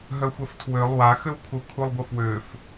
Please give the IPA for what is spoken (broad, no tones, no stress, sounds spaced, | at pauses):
ɦ œ xʷ ɛ f tʰ w ø lˠ w a x ø w kʰ u kʰ u lˠ ɡʷ ə f w ø f